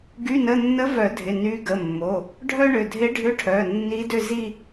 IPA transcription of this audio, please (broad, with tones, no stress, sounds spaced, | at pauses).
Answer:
ɡ y˧˥˧ n ə˧˥˧ nː ə˧˥ v œ˨˩˦ dʱ ɪ˩˧˩ n y˧˥ ɡ ə˩˧˩ mː o˩˧˩ | ɖʱ œ˥ ɳ ʏ˩˧˩ dʱ ɪ˧˥ ɖʱ ʏ˧˥˧ ʈʰ œ˩˧˩ nː i˧˥ d ʏ˥˧ z i˥˧